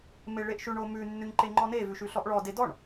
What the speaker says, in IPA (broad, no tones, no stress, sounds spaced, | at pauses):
m e ɭ e ʔ ʃ ʉ ɳ o m ʉ nː ʉ ɲ ǃ e ŋ͡ǃ ɔ n e v ʉ ʃ ʉ ɬ ɔ ʔ ɭ ɔ d e d ɔ ɳ